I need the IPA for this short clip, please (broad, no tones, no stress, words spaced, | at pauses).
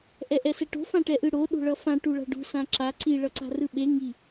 ʔɛʔɛsɛʈo̤ fãʈɛʔɯɽo ɗo̤ɭʌfã ʈuɭa̤ɖṳ sãǁa ǀi ɭʌǀa̤rɯɓe ŋi